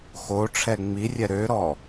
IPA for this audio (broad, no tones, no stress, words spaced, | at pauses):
xoʈ͡ʂʰɛ ŋ͡mirʲɛ ɾøɾɔ